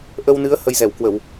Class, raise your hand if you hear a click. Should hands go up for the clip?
no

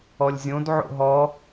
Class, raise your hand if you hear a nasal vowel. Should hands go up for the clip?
yes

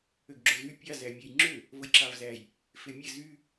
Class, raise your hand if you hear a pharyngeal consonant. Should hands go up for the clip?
no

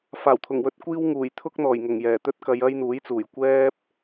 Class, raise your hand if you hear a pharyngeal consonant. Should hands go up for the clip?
no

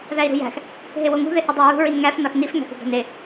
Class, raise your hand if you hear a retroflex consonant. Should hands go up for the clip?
no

